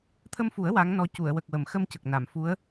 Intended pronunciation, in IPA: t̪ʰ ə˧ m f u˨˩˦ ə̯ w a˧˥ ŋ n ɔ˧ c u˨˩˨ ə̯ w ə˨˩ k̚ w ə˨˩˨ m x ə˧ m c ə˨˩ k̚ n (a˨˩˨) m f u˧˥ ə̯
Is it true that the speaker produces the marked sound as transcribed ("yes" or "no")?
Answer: yes